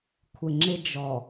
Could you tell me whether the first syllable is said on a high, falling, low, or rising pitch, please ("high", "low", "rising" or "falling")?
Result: low